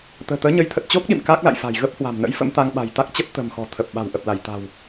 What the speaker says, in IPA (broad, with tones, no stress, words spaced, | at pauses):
t̪ə̤ː˨˩t̪əː˨˦ɲə˨˦jt̪ʰə˨˩t̚ t͡ɕo˦˥k̚ɗḭ˧˨m kaː˦˥k̚la̰˧˨jfa̤˨˩j ɣə˦˥p̚hwa̤˨˩mnə̰˧˥jfə̰˧˥m t̪a˧ŋɓa̤˨˩jt̪a˦˥k̚t͡ɕə˦˥p̚ t̪ə̤˨˩mxɔ̤˨˩ t̪ʰə˨˩p̚ ɓa̤˨˩wʔə˨˩p̚la˧˩j t̪a̤˨˩w